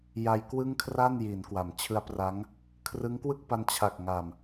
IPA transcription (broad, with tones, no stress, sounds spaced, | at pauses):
j a˧ j k w ɯ˥˩ ŋ kʰ r a˥˩ n j i˩˦ n k w a˩˦ m t͡ɕʰ ɯ˦˥ a̯ p r a˦˥ ŋ | kʰ r ɯ˦˥ ŋ k w ɯ˥˩ k̚ p a˧ n t͡ɕʰ a˨˩ k̚ ŋ a˨˩ m